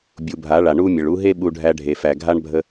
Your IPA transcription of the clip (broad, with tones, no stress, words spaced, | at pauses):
bʲu˨bʱa˨˦ɭa˨ ɳu˦mʲə˨ɭ u˧ɦe˦ ɓu˧ ɖʱæ˧ɖʱe˨fæ˨ ɡʱa˦ɳbʱə˧